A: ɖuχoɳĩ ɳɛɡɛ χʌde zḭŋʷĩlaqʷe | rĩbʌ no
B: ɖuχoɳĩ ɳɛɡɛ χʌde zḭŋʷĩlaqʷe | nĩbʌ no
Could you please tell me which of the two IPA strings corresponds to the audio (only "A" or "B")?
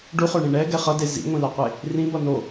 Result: A